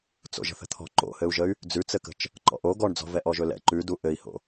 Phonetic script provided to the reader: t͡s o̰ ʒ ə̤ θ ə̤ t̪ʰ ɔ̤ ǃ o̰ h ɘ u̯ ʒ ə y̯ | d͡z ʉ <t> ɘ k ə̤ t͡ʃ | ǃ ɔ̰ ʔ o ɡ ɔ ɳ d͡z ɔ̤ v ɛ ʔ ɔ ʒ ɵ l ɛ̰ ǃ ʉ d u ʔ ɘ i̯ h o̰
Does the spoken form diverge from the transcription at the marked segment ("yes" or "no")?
yes